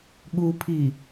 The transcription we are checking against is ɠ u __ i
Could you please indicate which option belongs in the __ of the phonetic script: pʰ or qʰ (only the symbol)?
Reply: pʰ